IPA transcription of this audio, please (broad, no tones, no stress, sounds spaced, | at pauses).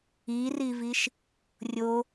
i r i v i ʃ | rʲ o